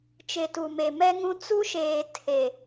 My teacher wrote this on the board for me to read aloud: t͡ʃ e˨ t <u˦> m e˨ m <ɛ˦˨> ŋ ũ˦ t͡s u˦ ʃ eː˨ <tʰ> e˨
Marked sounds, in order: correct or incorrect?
incorrect, incorrect, correct

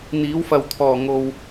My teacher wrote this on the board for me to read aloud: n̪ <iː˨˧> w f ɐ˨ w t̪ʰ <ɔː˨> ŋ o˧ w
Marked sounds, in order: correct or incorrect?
correct, correct

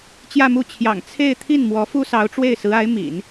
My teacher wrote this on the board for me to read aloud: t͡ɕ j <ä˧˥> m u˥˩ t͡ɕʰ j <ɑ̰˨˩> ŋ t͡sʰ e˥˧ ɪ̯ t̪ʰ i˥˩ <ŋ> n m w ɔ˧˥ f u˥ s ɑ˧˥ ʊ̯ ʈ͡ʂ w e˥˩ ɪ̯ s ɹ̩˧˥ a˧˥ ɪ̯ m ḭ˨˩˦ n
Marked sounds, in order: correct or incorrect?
incorrect, correct, incorrect

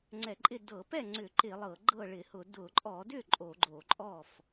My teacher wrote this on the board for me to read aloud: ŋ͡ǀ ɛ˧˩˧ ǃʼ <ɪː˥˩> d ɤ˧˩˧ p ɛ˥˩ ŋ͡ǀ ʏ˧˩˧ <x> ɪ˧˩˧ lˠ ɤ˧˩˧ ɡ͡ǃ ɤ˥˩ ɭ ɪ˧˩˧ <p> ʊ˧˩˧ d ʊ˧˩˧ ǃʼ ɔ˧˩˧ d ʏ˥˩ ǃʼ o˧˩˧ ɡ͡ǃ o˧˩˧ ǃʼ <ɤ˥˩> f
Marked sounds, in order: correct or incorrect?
incorrect, incorrect, incorrect, incorrect

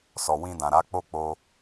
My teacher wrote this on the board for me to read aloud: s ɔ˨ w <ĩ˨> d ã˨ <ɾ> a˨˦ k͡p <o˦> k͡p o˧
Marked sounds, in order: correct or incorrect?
incorrect, correct, correct

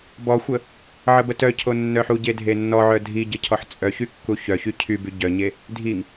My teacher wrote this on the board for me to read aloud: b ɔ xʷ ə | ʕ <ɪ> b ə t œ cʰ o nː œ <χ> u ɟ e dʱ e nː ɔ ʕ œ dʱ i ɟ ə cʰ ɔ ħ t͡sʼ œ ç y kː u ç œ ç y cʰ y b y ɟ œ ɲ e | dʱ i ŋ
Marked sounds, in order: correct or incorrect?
incorrect, incorrect

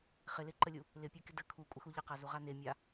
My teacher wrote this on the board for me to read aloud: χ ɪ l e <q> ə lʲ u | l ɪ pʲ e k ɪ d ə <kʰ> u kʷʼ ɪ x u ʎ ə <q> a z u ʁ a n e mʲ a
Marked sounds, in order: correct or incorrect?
incorrect, correct, correct

